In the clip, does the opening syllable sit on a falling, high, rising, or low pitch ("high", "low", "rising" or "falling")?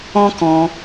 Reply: high